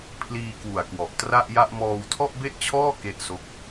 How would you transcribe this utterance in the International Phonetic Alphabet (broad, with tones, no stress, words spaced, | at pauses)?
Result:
pʰliː˧kwu˨˩a̯kwɔ˨˩ʔ tra˥˩ʔja˥˩ʔ mɔː˧wtʰɔ˥˩ʔbe˥˩ʔt͡ɕʰɔː˥˩ ke˦˥ʔso˦˥k̚